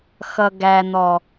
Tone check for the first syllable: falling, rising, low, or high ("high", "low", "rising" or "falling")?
low